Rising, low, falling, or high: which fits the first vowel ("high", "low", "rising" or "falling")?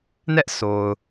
high